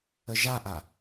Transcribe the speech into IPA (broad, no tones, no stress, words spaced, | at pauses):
əʒaʔa